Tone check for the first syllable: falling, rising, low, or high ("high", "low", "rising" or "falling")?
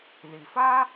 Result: low